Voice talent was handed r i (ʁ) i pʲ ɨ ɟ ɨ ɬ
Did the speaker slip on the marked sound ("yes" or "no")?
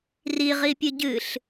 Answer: no